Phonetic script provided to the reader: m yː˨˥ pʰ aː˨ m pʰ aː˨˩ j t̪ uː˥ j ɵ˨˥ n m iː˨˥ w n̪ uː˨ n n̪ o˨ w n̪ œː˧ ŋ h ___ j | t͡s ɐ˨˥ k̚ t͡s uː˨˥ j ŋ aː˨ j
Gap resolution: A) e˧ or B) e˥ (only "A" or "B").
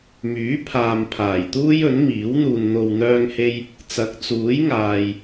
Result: A